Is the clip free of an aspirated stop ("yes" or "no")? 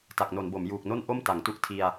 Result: no